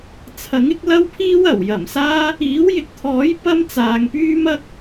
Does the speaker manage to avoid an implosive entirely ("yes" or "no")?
yes